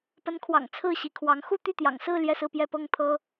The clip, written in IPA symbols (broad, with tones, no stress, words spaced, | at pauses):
pə˧˥nkʰwɑ̰˨˩ŋ t͡sʰɹ̩˥˩ɕi˧˥kʰwɑ˧˥ŋ xu˥˧t̪y˥˩t̪jɑ̰˨˩ŋsɹ̩˥˧ ljɛ˥˧sɹ̩˥˧pjɛ˥˧ pɤ˥˩ŋt̪ʰɤ˥